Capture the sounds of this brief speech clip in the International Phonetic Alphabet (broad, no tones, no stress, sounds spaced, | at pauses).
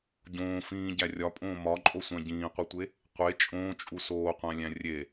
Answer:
ɟ õː f ĩː ɟ æ rʲ ɒ pʼ õː m ɒ ǃʼ o sʷ æ̃ ɟ ĩː qʷ i tʷ e | qʷ e t͡ʃʼ õː t͡ʃʼ u s oː qʷ æ̃ lʲ æ̃ rʲ e